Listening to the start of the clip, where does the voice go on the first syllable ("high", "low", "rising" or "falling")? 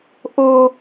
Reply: high